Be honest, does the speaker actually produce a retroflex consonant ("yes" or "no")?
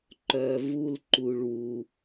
yes